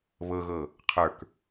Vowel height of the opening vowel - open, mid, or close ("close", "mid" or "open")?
mid